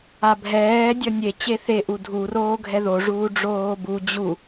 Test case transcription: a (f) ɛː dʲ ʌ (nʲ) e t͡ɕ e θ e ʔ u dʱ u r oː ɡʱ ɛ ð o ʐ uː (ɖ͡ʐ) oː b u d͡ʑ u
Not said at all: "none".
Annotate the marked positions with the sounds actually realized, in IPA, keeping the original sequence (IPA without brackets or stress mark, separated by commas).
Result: bʱ, nʲ, ɖ͡ʐ